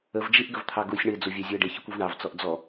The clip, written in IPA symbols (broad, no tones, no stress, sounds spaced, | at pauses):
ə v d͡ʒ i ʔ ɡ ə v t̪ʰ ɑ ɡ u sʲ ɳ ɪ d͡z u vʲ æ zʲ ʊ ə̯ ɖ ɪ ç ɪ kʷ u v ɳ ɑ v t͡s ɔ ʔ d͡z ɔ